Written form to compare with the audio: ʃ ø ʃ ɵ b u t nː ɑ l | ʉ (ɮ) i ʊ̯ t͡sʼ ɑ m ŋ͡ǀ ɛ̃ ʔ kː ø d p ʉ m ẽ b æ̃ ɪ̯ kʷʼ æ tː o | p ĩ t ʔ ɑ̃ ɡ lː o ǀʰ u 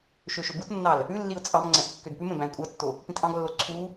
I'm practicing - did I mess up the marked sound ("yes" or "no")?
yes